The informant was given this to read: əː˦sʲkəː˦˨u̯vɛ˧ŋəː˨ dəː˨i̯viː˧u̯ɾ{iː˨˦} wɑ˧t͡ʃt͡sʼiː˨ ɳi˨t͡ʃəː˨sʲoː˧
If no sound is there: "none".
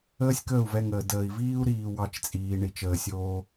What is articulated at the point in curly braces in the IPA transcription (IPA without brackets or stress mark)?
iː˨